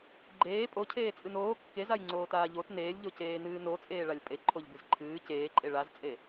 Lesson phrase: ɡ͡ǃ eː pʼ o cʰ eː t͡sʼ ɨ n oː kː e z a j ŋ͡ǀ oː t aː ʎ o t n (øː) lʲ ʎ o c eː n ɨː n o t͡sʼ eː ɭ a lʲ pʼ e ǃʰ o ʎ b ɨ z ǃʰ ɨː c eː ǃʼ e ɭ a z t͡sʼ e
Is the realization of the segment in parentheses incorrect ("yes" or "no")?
yes